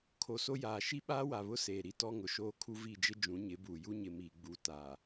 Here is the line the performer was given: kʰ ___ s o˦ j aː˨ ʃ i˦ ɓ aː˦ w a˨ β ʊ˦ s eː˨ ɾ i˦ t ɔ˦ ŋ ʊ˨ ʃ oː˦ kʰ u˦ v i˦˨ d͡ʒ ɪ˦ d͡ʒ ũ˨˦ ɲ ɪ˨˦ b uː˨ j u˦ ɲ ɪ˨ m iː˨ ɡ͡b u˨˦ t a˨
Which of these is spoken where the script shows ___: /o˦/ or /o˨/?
o˨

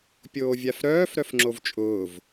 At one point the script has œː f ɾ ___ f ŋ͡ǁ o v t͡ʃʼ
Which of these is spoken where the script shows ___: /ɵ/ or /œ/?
œ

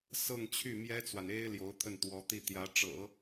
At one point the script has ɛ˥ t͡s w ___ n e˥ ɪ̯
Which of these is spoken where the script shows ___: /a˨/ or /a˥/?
a˨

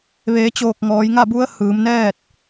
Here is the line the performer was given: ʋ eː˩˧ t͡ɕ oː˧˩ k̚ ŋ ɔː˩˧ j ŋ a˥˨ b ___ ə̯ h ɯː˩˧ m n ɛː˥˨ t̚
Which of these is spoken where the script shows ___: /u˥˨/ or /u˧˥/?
u˧˥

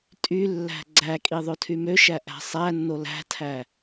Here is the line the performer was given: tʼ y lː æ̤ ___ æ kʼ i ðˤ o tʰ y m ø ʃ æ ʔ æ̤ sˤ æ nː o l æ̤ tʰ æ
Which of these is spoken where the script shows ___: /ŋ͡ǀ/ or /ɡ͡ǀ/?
ɡ͡ǀ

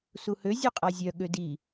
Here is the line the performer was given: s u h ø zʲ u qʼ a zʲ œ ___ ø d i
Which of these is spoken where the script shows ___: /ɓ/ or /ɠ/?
ɠ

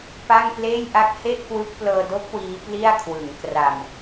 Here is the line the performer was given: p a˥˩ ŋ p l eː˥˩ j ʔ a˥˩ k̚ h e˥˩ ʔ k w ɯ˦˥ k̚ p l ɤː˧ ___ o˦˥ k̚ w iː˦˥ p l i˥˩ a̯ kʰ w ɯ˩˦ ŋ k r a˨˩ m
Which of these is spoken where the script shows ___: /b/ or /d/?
d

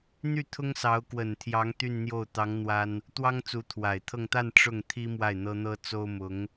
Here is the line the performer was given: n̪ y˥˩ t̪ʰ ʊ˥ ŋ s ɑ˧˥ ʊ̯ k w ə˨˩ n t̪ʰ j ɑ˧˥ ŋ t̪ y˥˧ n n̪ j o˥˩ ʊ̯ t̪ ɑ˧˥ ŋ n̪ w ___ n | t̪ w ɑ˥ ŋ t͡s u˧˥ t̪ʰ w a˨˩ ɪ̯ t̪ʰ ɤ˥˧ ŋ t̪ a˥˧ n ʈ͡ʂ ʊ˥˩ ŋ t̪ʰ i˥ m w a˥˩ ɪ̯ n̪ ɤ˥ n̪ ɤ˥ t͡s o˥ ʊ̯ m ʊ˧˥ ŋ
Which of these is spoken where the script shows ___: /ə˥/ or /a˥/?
a˥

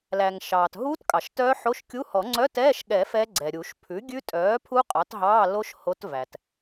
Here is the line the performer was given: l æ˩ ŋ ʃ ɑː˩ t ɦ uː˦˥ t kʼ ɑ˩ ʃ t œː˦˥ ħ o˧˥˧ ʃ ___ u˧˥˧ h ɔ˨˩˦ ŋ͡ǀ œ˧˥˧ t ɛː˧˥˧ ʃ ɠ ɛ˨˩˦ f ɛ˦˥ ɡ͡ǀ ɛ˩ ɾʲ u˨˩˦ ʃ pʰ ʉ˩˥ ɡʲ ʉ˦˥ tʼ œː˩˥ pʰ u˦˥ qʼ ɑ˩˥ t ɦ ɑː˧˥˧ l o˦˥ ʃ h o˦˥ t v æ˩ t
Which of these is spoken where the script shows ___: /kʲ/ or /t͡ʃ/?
kʲ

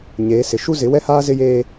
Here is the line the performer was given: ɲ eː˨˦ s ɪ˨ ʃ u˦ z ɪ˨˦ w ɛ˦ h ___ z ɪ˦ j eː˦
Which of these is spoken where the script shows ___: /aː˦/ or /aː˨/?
aː˦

